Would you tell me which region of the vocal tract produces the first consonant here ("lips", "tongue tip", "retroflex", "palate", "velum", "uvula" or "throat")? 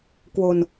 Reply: velum